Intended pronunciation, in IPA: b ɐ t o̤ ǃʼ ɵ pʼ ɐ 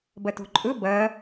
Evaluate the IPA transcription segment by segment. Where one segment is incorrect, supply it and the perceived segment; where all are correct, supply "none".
pʼ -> b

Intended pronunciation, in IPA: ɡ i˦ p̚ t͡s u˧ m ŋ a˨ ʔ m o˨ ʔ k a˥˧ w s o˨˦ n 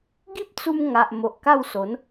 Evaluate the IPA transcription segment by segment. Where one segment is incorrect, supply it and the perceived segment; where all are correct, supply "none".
none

